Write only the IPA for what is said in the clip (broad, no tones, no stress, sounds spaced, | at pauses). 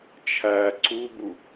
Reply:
t͡ʃʰ æ ǀ u b u